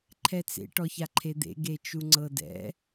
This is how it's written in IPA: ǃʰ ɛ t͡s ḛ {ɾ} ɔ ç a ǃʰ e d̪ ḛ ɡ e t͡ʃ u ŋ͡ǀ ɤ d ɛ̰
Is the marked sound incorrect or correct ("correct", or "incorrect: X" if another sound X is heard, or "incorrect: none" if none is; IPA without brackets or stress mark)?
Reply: incorrect: ʈ